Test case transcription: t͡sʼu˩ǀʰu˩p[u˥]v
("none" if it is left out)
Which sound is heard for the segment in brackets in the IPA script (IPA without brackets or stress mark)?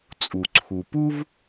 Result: u˥